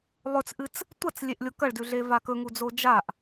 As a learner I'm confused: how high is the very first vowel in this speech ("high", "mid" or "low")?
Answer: mid